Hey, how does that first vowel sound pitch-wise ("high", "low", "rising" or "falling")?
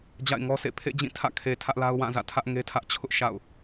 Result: falling